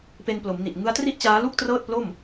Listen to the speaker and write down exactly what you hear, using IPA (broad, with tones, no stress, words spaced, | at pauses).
pe˧nplo˩˦mni˨˩ʔ ŋɯ˦˥a̯tri˥˩ʔt͡ɕaː˦˥lu˥˩k̚ trɤː˥˩t̚plo˥˩m